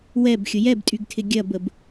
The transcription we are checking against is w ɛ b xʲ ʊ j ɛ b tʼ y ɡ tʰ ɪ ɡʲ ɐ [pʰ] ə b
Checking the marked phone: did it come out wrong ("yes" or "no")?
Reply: yes